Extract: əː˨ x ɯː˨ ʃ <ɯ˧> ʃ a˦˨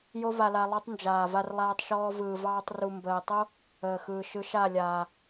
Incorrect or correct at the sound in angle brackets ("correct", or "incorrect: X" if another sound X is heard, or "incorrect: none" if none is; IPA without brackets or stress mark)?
correct